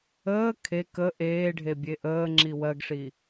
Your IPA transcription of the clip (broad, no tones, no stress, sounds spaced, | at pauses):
əː kʰ e k ə ʔ eː ɖʱ e bʲ e ʔ əː ŋ͡ǁ i w ɜ ɡ ʂ i